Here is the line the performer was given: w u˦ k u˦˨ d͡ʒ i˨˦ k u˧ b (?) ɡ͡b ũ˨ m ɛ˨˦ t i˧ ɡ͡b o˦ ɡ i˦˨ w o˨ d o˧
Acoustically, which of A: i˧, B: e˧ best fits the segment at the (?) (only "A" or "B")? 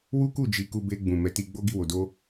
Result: B